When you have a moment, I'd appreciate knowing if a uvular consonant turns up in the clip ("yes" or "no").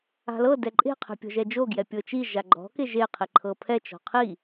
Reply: yes